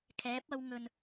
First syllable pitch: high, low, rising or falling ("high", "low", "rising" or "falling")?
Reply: rising